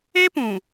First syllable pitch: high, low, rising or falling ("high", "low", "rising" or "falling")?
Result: high